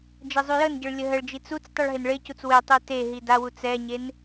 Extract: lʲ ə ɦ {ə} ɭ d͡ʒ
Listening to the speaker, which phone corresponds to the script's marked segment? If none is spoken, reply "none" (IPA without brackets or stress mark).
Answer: ə